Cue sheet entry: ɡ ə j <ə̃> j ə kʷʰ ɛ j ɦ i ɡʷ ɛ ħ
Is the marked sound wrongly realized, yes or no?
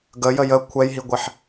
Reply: yes